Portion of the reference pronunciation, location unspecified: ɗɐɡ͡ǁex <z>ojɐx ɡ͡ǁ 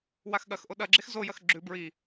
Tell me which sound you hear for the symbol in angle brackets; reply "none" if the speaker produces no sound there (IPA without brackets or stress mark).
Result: z